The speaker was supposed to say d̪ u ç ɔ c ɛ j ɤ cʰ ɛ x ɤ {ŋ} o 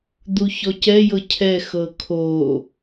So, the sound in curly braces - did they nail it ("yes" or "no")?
no